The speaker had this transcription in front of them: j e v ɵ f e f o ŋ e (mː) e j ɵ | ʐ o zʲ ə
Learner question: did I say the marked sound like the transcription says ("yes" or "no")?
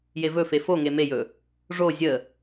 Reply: no